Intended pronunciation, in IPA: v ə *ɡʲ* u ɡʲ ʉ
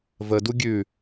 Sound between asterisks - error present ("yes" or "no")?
yes